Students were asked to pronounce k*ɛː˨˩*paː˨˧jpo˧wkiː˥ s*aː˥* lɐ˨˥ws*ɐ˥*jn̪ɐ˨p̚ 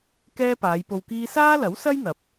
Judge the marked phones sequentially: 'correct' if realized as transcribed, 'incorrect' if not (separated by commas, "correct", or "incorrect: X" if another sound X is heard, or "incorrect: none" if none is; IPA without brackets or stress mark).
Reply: incorrect: ɛː˥, correct, correct